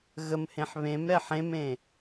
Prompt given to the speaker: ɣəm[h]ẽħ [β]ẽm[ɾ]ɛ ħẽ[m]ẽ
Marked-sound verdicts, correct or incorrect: correct, correct, correct, correct

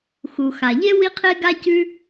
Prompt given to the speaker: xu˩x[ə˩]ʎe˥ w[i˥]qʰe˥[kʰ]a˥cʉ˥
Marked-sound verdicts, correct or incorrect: incorrect: a˩, correct, incorrect: ɡ

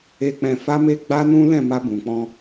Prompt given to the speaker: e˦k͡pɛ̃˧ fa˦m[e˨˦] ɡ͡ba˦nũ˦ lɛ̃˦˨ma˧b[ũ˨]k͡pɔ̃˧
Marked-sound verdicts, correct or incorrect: incorrect: e˦, correct

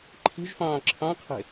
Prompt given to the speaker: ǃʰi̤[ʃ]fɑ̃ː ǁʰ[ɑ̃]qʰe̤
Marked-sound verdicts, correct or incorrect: incorrect: ʒ, correct

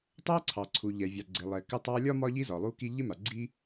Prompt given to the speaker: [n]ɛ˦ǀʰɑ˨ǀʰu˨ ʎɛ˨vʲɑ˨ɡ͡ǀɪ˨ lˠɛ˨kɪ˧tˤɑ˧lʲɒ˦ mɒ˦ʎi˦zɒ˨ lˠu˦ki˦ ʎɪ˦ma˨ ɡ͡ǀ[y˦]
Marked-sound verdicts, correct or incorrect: incorrect: tˤ, incorrect: i˦

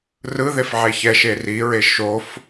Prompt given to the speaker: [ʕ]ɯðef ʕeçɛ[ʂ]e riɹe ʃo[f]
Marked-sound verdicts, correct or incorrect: incorrect: r, incorrect: ʃ, correct

